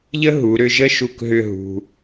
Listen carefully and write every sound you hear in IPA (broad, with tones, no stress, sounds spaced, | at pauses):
ʎ ə˥ ɦ u˩˧ ɾ ʏ˥˧ ʒ ə˥˧ ʃ u˧˩ k ɦ ʏ˥˧ ɦ ṳ˧